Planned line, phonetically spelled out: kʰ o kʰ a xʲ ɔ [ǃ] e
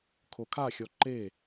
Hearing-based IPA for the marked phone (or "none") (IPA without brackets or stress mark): ǃ